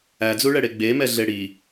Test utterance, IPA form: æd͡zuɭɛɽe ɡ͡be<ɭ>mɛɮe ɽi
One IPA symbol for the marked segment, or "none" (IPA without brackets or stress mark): none